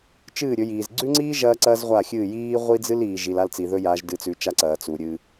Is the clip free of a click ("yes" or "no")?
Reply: no